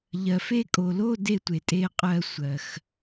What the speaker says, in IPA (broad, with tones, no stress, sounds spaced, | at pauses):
ʎ ɜ˨ f e˥˧ kʼ o˨ l o˥˧ d e˥˧ tʷ e˨ tʼ e˥˧ qʼ ɜ˥˧ sʷ ɜ˨ x